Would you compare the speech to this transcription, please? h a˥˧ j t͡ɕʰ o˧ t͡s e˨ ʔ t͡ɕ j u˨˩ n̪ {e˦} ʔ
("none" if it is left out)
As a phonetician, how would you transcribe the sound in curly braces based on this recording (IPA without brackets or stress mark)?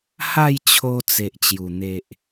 e˨